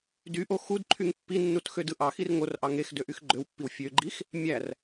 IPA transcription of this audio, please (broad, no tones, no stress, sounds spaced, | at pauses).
d y ʔ o x u d ǃʰ y ŋ pː i nː u t x ø d ɯ ʔ ɑ x i r ŋ o r ʔ ɑ ŋ e x d ø ʔ y x ɡ͡ǃ ø w pː i w fʲ ø ɡ͡ǃ i x | mʲ æ r